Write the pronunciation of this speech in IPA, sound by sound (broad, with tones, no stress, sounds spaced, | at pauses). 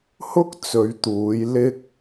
h ʊ˥ k̚ t͡s ɵ˨˧ ɥ t̪ uː˨˧ j l ɪ˥ k̚